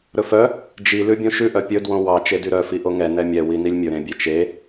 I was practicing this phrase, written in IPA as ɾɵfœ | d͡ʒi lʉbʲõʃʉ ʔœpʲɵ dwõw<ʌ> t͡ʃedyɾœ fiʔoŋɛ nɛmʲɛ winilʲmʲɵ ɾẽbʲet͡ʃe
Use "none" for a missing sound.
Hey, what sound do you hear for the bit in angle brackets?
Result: ɑ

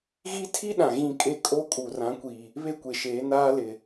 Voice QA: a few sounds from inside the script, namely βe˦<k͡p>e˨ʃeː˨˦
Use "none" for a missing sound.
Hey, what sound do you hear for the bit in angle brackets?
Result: kʷ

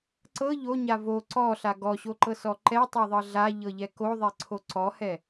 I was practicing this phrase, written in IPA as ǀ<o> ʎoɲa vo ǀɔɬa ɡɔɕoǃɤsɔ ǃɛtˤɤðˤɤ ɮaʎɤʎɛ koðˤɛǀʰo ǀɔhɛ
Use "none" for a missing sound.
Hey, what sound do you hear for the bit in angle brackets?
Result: ɤ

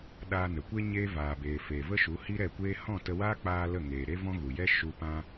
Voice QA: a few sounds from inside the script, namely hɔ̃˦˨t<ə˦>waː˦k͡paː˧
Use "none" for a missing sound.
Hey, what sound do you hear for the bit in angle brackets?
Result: ə˧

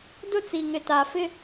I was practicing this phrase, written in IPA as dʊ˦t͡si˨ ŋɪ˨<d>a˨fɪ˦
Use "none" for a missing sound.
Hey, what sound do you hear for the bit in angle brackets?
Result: t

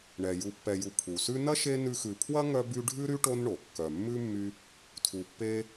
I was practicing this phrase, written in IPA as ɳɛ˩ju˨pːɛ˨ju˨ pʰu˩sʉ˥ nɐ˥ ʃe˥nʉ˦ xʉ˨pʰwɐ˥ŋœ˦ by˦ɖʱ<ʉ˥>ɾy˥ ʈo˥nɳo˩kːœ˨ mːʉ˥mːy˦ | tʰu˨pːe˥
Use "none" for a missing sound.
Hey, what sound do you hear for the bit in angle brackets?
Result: ʉ˥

